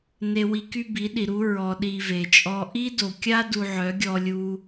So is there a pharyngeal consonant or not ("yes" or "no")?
yes